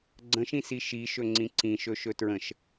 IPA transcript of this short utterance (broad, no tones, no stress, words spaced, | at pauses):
ɡ͡ǀə̃ʃĩsi ʃiʃɵŋ͡ǀĩ ǀĩʃɵʃɵ tɹə̃ʃ